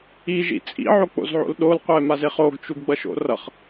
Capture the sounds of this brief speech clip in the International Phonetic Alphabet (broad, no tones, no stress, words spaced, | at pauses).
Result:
iʒḭ t͡sʼḭʕok͡po̰zʕo̰l ɗolqʷɛmaze χoɡt͡ʃuɡɡ͡bʌʃo̰ rʌχ